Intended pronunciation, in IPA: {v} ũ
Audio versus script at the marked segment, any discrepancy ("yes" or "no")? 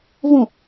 no